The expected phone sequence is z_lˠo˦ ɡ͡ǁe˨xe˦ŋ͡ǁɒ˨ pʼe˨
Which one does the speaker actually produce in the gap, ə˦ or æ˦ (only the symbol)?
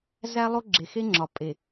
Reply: æ˦